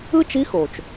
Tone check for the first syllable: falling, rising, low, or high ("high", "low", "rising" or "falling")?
high